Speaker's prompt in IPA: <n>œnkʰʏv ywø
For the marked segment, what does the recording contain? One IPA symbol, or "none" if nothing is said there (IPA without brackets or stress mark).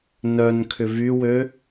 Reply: n